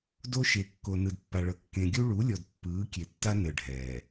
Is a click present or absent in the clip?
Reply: absent